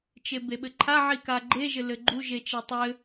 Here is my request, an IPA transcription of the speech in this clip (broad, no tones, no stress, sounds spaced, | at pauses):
t͡ʃ e b e ɓ ɘ ǃʰ a ʕ i k a ɡ͡ǃ e ʒ ɘ l ɘ ɡ͡ǃ u ʒ e t͡ʃ e tˤ ɘ